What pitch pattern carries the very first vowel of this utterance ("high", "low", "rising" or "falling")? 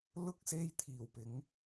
high